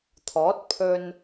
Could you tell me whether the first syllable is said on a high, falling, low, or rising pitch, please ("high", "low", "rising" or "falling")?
rising